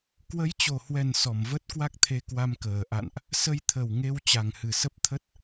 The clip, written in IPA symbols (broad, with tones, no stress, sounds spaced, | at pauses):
k w ə˨˦ j t͡ɕ o˨˩ h w ɛ˨˩ n s ɔ˧˩ m v ə˦˥ t̚ k w a˦˥ k̚ t̪ʰ e˧ k w a˧ m k əː˨˩ ʔ a̰˧˨ n ʔ | s ə˧ j t̪ʰ ə˨˩ w ŋ e˧ w t͡ɕ a˨˩ ŋ h ɨ˨˩ s ə˦˥ p̚ t̪ʰ ə˦˥ t̚